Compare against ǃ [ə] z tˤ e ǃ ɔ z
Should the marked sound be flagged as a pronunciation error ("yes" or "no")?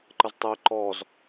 no